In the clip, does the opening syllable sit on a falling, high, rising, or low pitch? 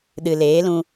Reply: low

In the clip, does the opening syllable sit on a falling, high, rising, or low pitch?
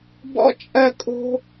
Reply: high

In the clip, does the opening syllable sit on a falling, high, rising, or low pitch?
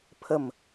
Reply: falling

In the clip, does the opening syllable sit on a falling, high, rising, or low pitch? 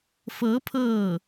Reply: rising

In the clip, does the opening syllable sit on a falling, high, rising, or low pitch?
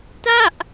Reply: falling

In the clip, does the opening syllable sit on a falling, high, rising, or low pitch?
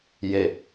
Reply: low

